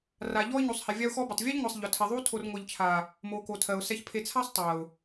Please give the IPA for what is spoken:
r a˨ ʎ ɔ˦ ɪ̯ ɲ u˨ sˤ h e˨ vʲ a˦ ʊ̯ x ɔ˦ b e˨ tˤ vʲ e˦ ʎ ŋʷ ɛ˨ sˤ ʎ ɔ˨ tʰ e˨ ðˤ u˦ tʰ o˨ r ŋʷ ɛ˨ ʎ t͡ʃʰ a˨ | m o˨ k o˨ tʰ ɜ˨ ʊ̯ s ɛ˨ ç pʰ e˨ t͡sʰ a˦ sˤ tˤ ɜ˨ ʊ̯

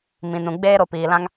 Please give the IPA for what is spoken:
m ĩ˨ n ũ˨ ɡ͡b eː˦ ɾ o˧ p iː˨ l ã˦ ŋ

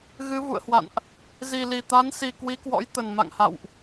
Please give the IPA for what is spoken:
ɣ ɨ˨˦ v ṵ˧˨ ə̯ h w a̰˧˨ n ʔ | z i˨˩ l i˨˩ t̪ a˨˦ n s i˨˩ k w i˨˦ k w ɔ̰˧˥ j t̪ ə˨˩ n m a̰˧˨ ŋ h a̰˧˨ w ʔ

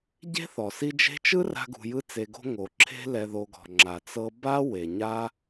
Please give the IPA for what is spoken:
ɟ e̤˥ θ ɔ˩ s i˦ d͡ʒ e̤˦ t͡ʃ ɯ˥ r a̤˦ ɡ ṳ˨ j ɯ˦ t͡s e˨ ɡ o̤˦ ŋ o˩ ǁʰ e̤˦ l ɛ˨ ð o˨ ɡ ɔ̤˩ ŋ͡ǁ a˩ t͡s ɤ˦ b a˥ w e˩ ɲ a˦

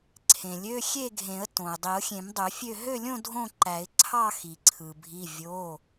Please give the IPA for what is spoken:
ǀʰ ẽ˩ lʲ ø˧˥˧ xʲ e˥˨ ɡʱ ẽ˨˩˦ ə̯ t õ˩ ɪ̯ dˤ i˨˩˦ ʊ̯ xʲ ẽ˨˩˦ m dˤ ø˨˩˦ fʲ ø˥˨ ɦ ø˥˨ lʲ õ˥˨ dʱ õ˥˨ ǃ æ˨˩˦ ɪ̯ ǀʰ ɑ˥˨ x i˩ ǀʰ ɯ˩ bʱ i˩˧˩ vʲ o˩˧˩

